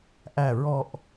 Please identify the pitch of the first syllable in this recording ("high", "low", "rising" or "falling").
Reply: low